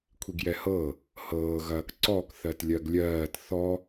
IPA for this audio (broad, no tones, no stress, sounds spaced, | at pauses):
kʷʰ i ɡ j ɛ h ɤ | h ɤː ɣ ɐː k ǀ ɔ k θ ɜ t lʲ ɜ ɡ lʲ ɜː t θ ɔ